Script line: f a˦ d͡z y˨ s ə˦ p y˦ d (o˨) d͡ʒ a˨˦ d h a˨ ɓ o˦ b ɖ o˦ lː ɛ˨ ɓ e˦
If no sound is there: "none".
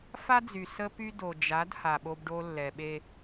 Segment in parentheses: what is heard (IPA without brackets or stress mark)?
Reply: o˨